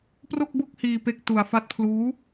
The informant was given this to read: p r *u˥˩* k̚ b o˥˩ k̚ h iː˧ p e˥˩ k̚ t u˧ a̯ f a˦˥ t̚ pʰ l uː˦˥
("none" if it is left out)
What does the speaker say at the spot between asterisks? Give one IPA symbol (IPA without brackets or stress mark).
o˥˩